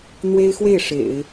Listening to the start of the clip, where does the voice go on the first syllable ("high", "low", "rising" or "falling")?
high